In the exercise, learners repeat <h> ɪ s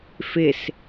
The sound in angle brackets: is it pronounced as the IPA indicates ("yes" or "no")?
no